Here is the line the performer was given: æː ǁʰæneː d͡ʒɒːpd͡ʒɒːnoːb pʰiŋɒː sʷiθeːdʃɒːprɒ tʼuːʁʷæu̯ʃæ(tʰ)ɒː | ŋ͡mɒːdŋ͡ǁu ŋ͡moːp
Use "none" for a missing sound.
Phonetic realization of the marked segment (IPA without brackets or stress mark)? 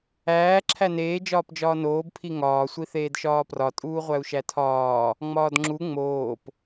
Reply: tʰ